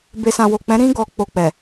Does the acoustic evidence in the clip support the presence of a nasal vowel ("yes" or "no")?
yes